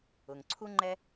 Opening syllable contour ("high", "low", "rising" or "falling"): low